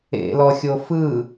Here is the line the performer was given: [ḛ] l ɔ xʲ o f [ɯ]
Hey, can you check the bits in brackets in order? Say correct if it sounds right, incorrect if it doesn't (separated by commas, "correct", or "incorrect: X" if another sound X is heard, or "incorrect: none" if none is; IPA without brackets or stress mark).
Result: correct, correct